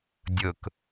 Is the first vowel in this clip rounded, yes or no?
yes